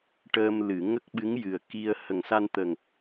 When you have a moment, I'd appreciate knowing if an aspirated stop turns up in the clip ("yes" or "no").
no